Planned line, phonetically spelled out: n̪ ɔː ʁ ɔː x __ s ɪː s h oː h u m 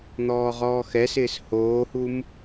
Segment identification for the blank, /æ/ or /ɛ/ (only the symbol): ɛ